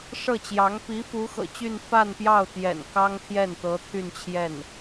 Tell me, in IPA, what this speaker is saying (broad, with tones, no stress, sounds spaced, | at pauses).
ʂ ɤ˥˩ t͡ɕ j ɑ˧˥ ŋ p i˧˥ f u˧˥ x ɤ̰˨˩ t͡ɕ y˥˧ n f a˥˧ n p j ɑ˥˩ ʊ̯ t̪ j ɛ̰˨˩ n k ɑ˥ ŋ t̪ʰ j ɛ˥˩ n t̪ ɤ˧˥ t̪ʰ y˥˧ n t͡ɕʰ j ɛ˥˩ n